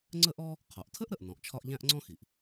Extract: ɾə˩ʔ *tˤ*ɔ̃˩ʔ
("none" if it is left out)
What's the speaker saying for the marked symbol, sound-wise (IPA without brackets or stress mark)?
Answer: n